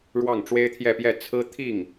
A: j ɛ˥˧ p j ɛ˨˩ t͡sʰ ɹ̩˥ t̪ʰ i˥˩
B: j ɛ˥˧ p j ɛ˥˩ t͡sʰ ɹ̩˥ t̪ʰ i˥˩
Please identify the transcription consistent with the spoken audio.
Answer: B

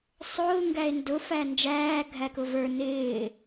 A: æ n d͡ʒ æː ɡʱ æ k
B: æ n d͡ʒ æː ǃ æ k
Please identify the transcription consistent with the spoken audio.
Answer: A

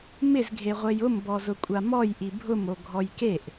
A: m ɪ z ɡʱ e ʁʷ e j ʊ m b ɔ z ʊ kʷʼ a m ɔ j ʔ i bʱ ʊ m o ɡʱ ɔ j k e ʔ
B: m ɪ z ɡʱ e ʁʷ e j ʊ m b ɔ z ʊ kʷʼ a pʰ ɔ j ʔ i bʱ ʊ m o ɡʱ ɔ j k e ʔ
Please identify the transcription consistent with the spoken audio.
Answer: A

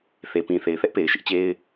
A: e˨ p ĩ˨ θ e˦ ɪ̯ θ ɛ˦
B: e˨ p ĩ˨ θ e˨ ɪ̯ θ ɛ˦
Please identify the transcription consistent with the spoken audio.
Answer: B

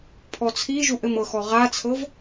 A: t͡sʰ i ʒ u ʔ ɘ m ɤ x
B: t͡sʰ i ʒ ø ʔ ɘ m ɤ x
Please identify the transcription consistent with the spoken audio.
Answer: A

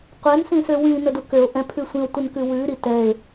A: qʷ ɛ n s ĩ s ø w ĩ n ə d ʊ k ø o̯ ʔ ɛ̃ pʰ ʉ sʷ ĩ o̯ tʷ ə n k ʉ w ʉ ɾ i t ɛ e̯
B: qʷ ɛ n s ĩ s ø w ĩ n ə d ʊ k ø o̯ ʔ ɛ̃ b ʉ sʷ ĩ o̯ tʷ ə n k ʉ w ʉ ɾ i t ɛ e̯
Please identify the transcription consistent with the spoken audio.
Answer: A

